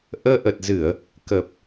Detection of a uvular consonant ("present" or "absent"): absent